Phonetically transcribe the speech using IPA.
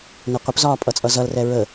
n ɛ qʷ ə p z ɒː pʼ ʌ t͡sʼ ʌ z ʌ l r ɛ ɹ ə

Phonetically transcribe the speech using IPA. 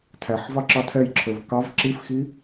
tʰ æ ħ v ɑ ǁ ɑ tʰ ɛ j ǁʰ ə˞ v k ɑ v ǁ i f x i

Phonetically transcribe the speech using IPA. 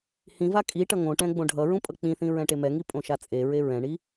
h ĩ v a kʼ i ʈ ʌ ŋ õ ʈ ɛ̃ ɡ͡b õ ɖʱ ʌ ɹ ũ pʼ ʌ k͡p ĩ θ ĩ ɹ ɛ̃ ʈ e m ɛ ŋ i pʼ õ ʃ a t͡sʼ e ɹ e ɹ ɛ̃ ɳ i

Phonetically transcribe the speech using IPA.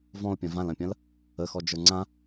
v ɔ̃ o̯ pʲ ɐ̃ v ã l ɐ̃ pʲ ɐ̃ l | ə x ɔ d͡ʒ ə˞ ŋ͡ǀ ã

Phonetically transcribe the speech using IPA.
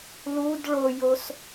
l u d ɭ o j o s

